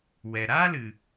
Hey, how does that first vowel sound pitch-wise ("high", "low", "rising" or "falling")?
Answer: low